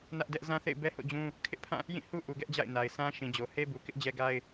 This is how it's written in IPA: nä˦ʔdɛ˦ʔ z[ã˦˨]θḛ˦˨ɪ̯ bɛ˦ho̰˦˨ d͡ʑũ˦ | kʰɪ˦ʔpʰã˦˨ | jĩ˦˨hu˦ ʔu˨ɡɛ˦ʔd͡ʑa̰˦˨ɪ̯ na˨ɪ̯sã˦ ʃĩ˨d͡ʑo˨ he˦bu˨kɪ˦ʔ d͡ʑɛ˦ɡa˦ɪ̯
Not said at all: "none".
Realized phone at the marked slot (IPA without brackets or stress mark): ã˦